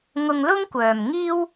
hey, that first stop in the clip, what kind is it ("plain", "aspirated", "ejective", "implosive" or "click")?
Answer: plain